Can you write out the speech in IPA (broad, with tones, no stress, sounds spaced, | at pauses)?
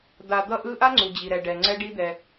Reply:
d̪ a˨ d̪ ʌ˧ ʔ ɯ˦ ʔ a˦ ŋ͡ǀ u˨ d͡ʑ i˨ ɾ ɛ˨ ɖ ɛ˨ ŋ͡ǀ ɛ˦ ɖ i˦ d̪ ɛ˧